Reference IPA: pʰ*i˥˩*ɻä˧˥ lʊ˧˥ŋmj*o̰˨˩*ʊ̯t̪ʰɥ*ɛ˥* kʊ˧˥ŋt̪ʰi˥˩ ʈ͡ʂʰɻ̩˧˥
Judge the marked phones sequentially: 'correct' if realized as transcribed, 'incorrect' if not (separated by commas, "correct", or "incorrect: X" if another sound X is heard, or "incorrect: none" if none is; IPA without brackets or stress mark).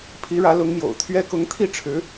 incorrect: i˧˥, correct, correct